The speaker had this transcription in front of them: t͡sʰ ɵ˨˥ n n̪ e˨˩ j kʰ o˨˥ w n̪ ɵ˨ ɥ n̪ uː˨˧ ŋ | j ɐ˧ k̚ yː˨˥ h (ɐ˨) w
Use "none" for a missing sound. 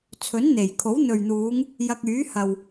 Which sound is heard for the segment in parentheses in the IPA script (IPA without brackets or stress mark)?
ɐ˨